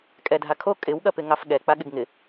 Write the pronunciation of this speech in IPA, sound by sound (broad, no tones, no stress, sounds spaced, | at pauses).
kʼ ɛ dʱ a kʰ o kʼ ɪ w ɠ ɐ p ɪ ŋ ɑ f ɠ ɛ k͡p a ɠ ɪ ɡ ŋ ɪ